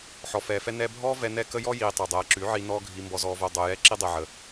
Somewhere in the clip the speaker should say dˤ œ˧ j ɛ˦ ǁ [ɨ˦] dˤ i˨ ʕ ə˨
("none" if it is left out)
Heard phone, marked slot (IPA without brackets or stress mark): i˦